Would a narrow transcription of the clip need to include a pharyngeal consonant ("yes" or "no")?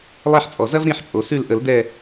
yes